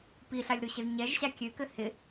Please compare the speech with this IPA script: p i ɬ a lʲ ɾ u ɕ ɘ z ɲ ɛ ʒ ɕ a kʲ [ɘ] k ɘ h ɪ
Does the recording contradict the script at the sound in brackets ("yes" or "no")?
yes